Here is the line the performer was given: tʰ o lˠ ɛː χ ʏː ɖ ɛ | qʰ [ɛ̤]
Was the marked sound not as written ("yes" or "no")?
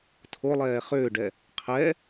yes